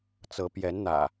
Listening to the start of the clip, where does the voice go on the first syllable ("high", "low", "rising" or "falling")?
rising